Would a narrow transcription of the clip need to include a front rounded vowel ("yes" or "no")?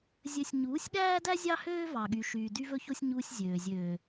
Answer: yes